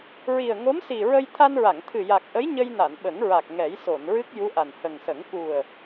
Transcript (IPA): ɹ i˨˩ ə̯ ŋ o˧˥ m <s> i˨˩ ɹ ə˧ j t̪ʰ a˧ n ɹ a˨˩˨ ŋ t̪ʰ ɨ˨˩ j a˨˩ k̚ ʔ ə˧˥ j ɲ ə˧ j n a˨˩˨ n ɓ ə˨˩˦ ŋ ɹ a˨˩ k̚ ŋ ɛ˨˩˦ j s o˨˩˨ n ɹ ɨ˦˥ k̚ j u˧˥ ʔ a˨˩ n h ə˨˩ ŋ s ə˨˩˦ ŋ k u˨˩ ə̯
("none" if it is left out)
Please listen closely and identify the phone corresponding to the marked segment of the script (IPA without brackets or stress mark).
s